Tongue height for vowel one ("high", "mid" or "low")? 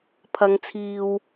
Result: low